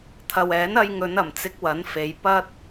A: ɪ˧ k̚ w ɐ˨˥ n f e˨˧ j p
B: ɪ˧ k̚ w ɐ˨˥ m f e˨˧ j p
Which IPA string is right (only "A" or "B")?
A